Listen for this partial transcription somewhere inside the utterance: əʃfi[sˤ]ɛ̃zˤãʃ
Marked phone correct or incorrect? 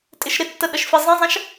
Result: incorrect